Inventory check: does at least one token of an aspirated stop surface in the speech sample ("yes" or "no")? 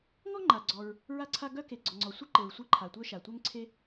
yes